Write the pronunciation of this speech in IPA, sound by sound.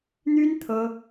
n̪ y˥ n t̪ʰ ɤ˥

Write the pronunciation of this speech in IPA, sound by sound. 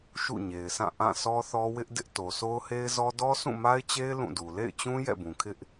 ʃ ṵ˦˨ ɲ e˨ ɪ̯ s ã˦˨ ʔ ã˦˨ s ɔ˦ θ ɔ˦ w ɪ˦ ʔ d ɪ˦ ʔ t o˨ sʰ o˦ ʊ̯ h e˦ ɪ̯ z ɔ˦ d ɔ˦ sʰ ũ˦˨ m a˦ ɪ̯ t͡ɕ e˦ ɪ̯ l ũ˦˨ d u˨ l ḛ˦˨ ɪ̯ t͡ɕ ũ˦ j ɛ̰˦˨ b ũ˨ kʰ ɪ˦ ʔ

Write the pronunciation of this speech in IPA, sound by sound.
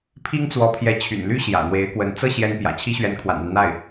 pʰ i˥ ŋ t͡s w ɔ˧˥ pʰ j ɛ˧˥ t͡ɕʰ y̰˨˩ n l y˥ ɕ j ä̰˨˩ n̪ w e˧˥ ɪ̯ k w ə˧˥ n t͡s ɤ˥˩ ɕ j ɛ˥ n p j ä̰˨˩ t͡ɕʰ i˥ ɕ ɥ ɛ˧˥ n kʰ w a̰˨˩ n a˦ n n̪ a˥˩ ɪ̯

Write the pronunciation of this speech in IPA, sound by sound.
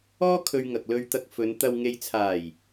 ɔː˥ kʰ ɵ˧ ɥ ŋ ɐ˨ k̚ l ɵ˧ ɥ t̪ ɐ˧ k̚ f ɵ˨˧ n t̪ ɐ˨ w ŋ e˨ j t͡sʰ aː˨˩ j

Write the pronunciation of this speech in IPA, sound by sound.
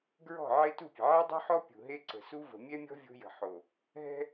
ɡ ɹ ɔ̤˦˨ ʕ e˦ t u˦˨ pʲ ə̤˨ ʕ e˦ dˤ ṳ˦ ħ ɔ˦ pʲ ṳ˨ ɦ e˦ ǀ ə̤˨ s u˦ v ə̤˨ mʲ ɛ˦ mʲ ɔ̤˦ vʲ o̤˦ j ə̤˨ ħ o˨ | ɦ ɛ̤˦

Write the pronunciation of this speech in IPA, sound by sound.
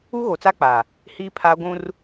u˦ ɣ o˨ t͡s a˦ k͡p a˨ | h iː˦ pʰ aː˦ ɡʷ ũ˦ r

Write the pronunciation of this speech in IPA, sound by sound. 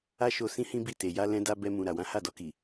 a˦ ʃ o˧ s ĩ˦ h ĩ˦ b i˦˨ t e˨ j a˧ l ɛ̃˧ d a˧ b ɛ˧ m ũ˨ ɾ a˨ w ã˨˦ h a˦˨ d ɔ˧ k i˨

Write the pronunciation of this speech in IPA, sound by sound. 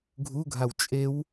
ɡʱ u ɡʱ a w t͡ʃʼ e w

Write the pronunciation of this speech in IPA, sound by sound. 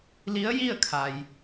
l i˧˥ ə̯ j i˥˨ ə̯ kʰ a˩ j

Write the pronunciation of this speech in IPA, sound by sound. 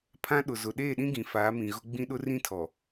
pʰ ã˦ ɗ ʊ˨ z ʊ˨ ɗ eː˦˨ ɗ ĩ˦ ɡ ĩ˨ f aː˨˦ m ĩ˨ ɣ ʊ˦ ɡ͡b ĩ˦ ɗ ʊ˦ r ĩ˦ tʰ ɔ˨

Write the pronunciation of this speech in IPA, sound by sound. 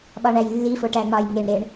ɓ ɒ ɳ æ j lː i f o ʈ æ ŋ͡m ɒ j ŋ e ɳ ɾ e ɳ

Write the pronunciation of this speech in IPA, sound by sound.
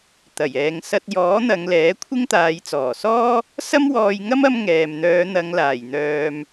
t̪ ɐ˨˩ j ɛː˨ ŋ s ɐ˧ t̚ j ɔː˨˥ n̪ ɐ˨˧ ŋ l ɛː˨˥ kʷʰ ɪ˥ ŋ t̪ aː˨˧ j t͡s ɔː˨˩ s ɔː˥ | s ɐ˥ m w ɔː˧ j ŋ ɐ˥ m ɐ˥ m ŋ ɛː˨ m n̪ œː˨˧ n̪ ɐ˨˧ ŋ l aː˨˩ j n̪ œː˨ m

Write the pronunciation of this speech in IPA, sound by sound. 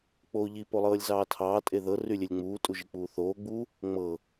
k͡p oː ʎ i p o lˠ ɤː lʲ z ɑː tʰ ɑː tʼ e ð ɤ r y lʲ e lʲ ŋ͡m uː tʼ u ʒ i k͡p uː θ oː ɡ͡b u | ŋ͡m ɤ

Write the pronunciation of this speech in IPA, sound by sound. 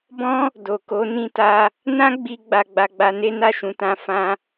b ɔ̃˦ | d o˨ k o˨˦ n ĩ˧ t a˧ | n ã˦ ɡ͡b i˧ ɡ͡b a˧ ɡ͡b a˧ ɡ͡b a˧ n e˦ n a˦˨ ʃ ũ˨˦ t ã˧ f ã˦

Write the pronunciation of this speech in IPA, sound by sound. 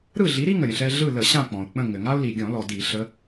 ɾ ɯ˦˨ ɮ i˨˦ ɾ i˦ ŋ ə˩ ɾʲ ə̃˩ ɬ ɛ˦ ɮ ɯ˦˨ l ə˧˩˧ ɕ ã˦˨ k͡p ɔ̃˩ ʊ̯ k͡p ə̃˦˨ ŋ ɘ˩ ŋ a˦ ʊ̯ l i˩ ɡʲ ɔ̃˧˩˧ l ɔ˩ d i˧˩˧ ɬ ə˨˦

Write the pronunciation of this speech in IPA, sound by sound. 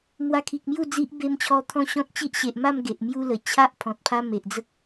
m w a˧ kʰ i˨ k̚ m j u˥˧ d͡z i˦ ʔ b e˧ m t͡ɕʰ ɔ˧ t̪ʰ ɔ̃˦ ɕ ɔ̃˦ t̚ t͡ɕ i˦ ʔ ɕ e˨ ʔ m a˥˧ m ɡ e˨ ʔ m j u˦ l ə˨˩ t͡ɕʰ a˦ ʔ pʰ ɔ̃˨ t̚ pʰ a˦ m e˨ ʔ d͡z ə˦ k̚

